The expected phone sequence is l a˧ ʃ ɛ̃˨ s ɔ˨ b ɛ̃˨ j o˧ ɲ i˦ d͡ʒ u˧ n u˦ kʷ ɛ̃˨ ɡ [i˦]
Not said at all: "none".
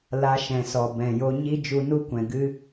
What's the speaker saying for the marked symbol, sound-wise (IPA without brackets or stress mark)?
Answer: ɨ˦